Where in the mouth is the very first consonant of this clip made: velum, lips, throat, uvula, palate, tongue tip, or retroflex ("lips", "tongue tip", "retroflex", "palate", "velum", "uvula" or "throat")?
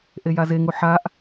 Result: throat